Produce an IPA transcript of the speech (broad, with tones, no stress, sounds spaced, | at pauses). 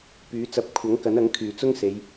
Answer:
p yː˨˥ t͡s ɐ˨˥ p̚ kʷʰ ɐ˨˥ ŋ k ɐ˨˥ n ɐ˨˥ ŋ kʰ yː˨˩ t͡s ʊ˥ ŋ s e˨˧ j